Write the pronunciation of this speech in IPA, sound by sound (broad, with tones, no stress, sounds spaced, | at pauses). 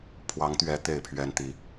pʰ w ɑ˨˦ ŋ t̪ ɥ ɛ˨˦ t̪ e˥˨ ɪ̯ pʰ ɥ ɛ˦ n t̪ i˨˩